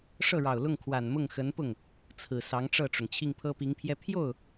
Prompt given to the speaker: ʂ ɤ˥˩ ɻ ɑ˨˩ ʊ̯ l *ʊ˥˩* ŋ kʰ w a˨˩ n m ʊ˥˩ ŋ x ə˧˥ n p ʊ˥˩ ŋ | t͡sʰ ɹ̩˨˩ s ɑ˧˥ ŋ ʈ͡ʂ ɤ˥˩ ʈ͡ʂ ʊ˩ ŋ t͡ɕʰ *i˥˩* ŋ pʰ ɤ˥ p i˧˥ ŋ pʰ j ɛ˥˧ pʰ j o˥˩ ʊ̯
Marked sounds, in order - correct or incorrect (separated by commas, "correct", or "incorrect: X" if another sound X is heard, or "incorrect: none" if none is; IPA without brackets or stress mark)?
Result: correct, correct